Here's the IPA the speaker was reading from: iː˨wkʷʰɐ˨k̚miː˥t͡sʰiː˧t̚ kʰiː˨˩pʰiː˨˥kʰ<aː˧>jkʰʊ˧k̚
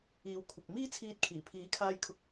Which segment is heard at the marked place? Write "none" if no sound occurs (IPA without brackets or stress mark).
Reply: aː˧